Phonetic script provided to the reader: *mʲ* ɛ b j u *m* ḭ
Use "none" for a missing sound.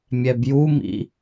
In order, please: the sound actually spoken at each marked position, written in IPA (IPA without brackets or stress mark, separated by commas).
mʲ, m